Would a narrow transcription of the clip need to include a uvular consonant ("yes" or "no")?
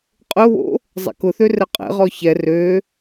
yes